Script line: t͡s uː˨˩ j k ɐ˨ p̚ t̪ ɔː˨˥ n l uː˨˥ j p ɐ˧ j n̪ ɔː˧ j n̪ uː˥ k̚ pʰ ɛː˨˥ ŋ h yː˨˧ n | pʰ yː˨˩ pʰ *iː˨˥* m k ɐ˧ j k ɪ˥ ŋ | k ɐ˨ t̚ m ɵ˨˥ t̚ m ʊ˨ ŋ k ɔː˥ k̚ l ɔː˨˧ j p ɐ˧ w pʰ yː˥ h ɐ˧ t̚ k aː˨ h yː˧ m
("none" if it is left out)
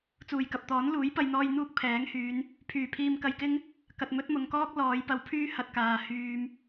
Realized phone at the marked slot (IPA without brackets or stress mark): iː˧